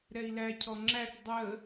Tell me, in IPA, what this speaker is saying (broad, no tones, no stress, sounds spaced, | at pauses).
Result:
ɾ ɛ i̯ l æ cʰ ɔ ŋ͡ǁ æ ʈ dˤ ə